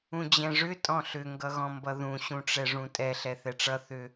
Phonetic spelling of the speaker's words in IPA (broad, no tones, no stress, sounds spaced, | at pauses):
ũ d͡ʑ ɛ̃ ʐ ʏ tʼ ɔ̃ ɬ ʏ ŋ ɡ ʌ ɣ ɔ̃ m b ʌ ð ũ ɕ ũ ʈ͡ʂ ɛ ʐ ũ tʼ ɛ ɬ ɛ θ ɛ ʈ͡ʂ ʌ θ ʏ